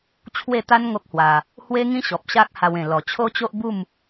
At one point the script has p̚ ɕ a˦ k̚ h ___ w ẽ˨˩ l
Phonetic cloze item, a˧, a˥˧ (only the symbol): a˧